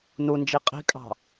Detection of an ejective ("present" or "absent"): present